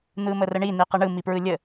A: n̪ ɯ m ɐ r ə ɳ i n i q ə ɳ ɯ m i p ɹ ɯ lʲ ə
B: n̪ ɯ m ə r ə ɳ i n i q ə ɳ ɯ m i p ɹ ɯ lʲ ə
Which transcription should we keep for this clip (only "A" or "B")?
B